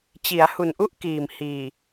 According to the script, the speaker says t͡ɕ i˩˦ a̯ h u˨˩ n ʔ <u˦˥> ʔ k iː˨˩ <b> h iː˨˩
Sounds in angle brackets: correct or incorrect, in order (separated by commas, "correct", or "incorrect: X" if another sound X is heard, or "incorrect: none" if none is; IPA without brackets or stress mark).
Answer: incorrect: u˥˩, incorrect: m